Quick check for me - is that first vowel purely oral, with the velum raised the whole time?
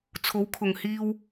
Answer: yes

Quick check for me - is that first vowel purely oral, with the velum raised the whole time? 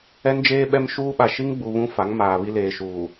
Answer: yes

